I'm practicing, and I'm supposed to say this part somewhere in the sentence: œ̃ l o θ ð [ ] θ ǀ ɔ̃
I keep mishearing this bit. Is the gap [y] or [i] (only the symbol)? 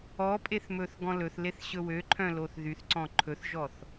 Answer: y